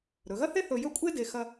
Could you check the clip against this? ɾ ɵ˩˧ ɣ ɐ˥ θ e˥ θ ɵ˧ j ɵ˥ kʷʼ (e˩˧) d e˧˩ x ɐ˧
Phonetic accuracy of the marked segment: incorrect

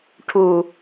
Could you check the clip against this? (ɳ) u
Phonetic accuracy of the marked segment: incorrect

